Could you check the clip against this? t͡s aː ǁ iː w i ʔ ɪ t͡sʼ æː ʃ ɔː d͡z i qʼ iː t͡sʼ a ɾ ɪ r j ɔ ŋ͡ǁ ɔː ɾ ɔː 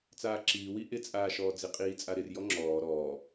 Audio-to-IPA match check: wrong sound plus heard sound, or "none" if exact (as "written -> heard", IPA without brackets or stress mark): æː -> aː